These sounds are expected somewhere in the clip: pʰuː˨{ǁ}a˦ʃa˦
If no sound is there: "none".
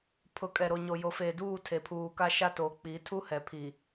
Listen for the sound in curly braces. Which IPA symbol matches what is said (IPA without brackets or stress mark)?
k